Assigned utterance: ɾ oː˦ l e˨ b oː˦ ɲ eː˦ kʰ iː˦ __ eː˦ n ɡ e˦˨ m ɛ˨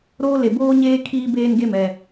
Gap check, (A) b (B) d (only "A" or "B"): A